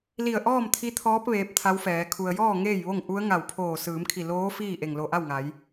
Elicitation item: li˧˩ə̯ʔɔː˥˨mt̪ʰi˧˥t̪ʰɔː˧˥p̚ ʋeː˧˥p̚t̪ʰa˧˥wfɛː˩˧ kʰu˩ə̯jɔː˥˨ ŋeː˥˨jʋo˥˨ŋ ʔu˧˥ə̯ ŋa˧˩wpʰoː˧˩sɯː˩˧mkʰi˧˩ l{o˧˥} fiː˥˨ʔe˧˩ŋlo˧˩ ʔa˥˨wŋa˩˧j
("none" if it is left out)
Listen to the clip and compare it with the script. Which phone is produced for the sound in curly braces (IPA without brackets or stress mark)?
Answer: oː˧˥